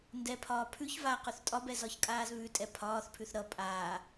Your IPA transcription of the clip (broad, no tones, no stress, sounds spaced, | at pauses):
n d ɛ pʰ ɒː pʰ ʉ ç v a q ʉ θ tʼ ɒ b ɛ z ɒ ç kʼ aː z β ʉ tʼ ɛ pʰ ɒː θ pʰ ʉ θ ɾ ʌ pʼ aː